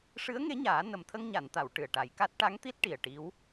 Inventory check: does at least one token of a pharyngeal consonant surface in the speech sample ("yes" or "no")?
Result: no